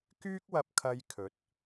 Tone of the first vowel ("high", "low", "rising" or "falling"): high